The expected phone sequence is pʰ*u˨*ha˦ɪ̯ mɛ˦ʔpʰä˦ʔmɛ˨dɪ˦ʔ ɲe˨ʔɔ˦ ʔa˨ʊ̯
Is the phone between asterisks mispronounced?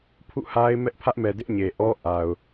yes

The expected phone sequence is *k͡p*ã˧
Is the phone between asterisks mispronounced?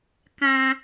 yes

